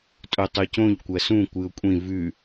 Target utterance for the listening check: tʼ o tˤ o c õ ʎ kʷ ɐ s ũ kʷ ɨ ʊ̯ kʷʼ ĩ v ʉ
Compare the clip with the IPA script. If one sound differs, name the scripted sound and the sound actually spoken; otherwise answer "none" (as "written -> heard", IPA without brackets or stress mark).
none